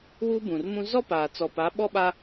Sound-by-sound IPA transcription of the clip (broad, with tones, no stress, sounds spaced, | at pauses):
w u˦ b ũ˨ r m ũ˦ z ɔ˦ p aː˨ t͡s ɔ˨ p a˨˦ ɓ ɔ˦ ɓ a˦